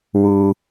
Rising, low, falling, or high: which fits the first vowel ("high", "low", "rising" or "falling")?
low